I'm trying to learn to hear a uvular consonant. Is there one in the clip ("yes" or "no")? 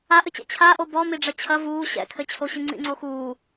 no